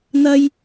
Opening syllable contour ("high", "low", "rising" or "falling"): high